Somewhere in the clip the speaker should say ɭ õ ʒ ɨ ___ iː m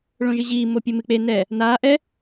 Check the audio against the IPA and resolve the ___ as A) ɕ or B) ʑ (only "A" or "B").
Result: B